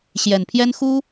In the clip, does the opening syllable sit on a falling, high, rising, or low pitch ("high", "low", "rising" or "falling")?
low